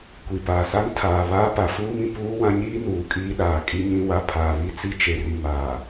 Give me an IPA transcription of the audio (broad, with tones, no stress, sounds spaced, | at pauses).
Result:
kʷ i˨ p aː˨ s a˦ ŋ tʰ aː˨ β aː˦ p a˨ f uː˦ m ĩ˨ p uː˦ w ã˦ ɲ iː˦ n uː˨ kʼ iː˦ ɗ aː˨ kʼ i˦ ɲ ĩ˦ w a˦ pʰ aː˨ β i˦ t͡s i˦ t͡ʃ e˨ r i˨ m aː˨